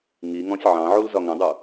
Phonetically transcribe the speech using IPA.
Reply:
ŋ i ŋ ɔ̃ sʲ ʕ ɑ̃ ʕ u l z ɒ ŋ ə̃ dˤ u

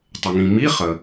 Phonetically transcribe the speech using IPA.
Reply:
tˤ ɪ˩ ŋ ĩ˩ m i˧˥˧ χ ə˩

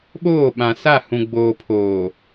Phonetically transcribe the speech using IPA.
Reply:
ɓ oː˦˨ ɓ ã˨ s a˦˨ h ũ˨ ɡ͡b oː˨ pʰ oː˨

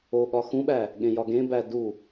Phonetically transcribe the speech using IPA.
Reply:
o ɠ ɒ x ũ ɓ æ | ɠ ẽ j ɒ ɡ ẽ b æ d u

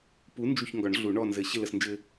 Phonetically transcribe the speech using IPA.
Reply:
p u˨˥ n d͡ʒ u˦˨ ç ŋ ɡ ɒ˨˩˦ ɳ ɮ u˨˩˦ ɳ ɔ˦˨ n z ɘ˨˩˦ ɕ ɪ˦˨ l ə˦˨ s n d͡ʒ ɘ˦

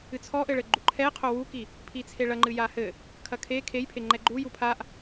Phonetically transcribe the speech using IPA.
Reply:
ɨ t͡sʰ ɔ ʔ ɘ ɭ ɘ ɡ͡ǃ u ǃʰ ɛ qʰ o w u k i | pʰ i t͡sʰ e ɭ ɐ ŋ͡ǃ ɨ j a h ɘ | kʰ ɐ kʰ e kʰ e j pʰ e ŋ͡ǃ ɛ ɡ͡ǃ u j u pʰ a ʔ

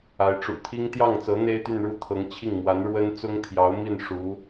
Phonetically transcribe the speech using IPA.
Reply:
a˧˥ ɪ̯ ʈ͡ʂ ṵ˨˩ t̪ʰ i˥ ŋ t̪ j ɑ˥˩ ŋ t͡s ɤ˧˥ n̪ e˥ ɪ̯ t̪ y˥˧ n ɻ u˥˩ t̪ʰ ɤ˧˥ ŋ t͡ɕʰ i˥˩ ŋ m w a˧˥ n ɻ w ə˥ n t͡s ʊ˥ ŋ t̪ʰ j ɑ˧˥ ʊ̯ m i˥˩ n ʂ u˧˥

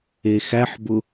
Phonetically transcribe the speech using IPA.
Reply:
e x æ ħ b ʊ

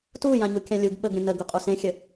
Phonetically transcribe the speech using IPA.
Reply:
t u j ã ɲ u kʲ ã lʲ u ɡ ɓ ə ɡ ɾʲ ə̃ n ə ɡ u qʼ u s ẽ xʲ ə

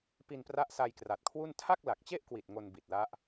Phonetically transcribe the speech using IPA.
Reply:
p i˧ n p r a˦˥ ʔ s a˧ j k r a˨˩ t̚ kʰ w u˥˩ n tʰ a˥˩ k̚ l a˨˩ k̚ t͡ɕ e˥˩ ʔ k w i˨˩ t̚ ŋ o˧ n b i˨˩ t̚ l a˦˥ ʔ

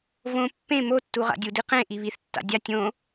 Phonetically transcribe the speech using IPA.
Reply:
v õ pː ẽ m o tː u ʁ a̰ dʲ u d i q ẽ ʔ i β i θ tː a̰ dʲ a tʲ õ

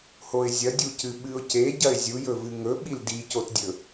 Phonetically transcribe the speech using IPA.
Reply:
h o ɪ̯ zʲ ɐ dʲ u c ɨ ɓ ɨ ʊ̯ c e ɟ ɐ ɪ̯ zʲ u j ɵ v ɨ ŋ ɵ ɓ i l d i c o t dʲ ɵ

